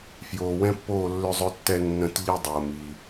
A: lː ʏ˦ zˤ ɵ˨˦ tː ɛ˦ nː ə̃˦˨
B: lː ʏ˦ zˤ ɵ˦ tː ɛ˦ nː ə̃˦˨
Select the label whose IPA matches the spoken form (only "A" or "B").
B